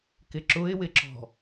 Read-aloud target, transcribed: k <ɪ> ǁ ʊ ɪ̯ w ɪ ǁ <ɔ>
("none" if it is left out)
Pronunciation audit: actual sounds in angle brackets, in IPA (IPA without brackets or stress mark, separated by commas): ɪ, ɔ̤